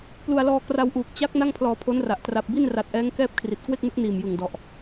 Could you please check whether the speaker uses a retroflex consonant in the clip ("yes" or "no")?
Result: no